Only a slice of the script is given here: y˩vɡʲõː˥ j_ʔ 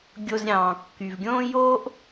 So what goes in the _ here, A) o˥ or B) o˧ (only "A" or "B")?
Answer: A